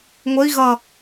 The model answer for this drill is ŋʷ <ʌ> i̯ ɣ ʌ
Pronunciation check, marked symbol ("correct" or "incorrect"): incorrect